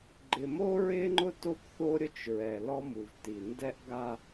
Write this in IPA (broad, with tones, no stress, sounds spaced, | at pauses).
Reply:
ɡ͡ǃ ɪ˨ m o˦ ɹ ɪː˦ ŋ͡ǃ ʊ˦ t o˦ p θ o˦ ɾʲ ʊ˦ t͡ʃ ɹ ɛ˨ l ɔ˦ m u˨ v t i˨ n d ɛ˦ ʔ ɡ a˦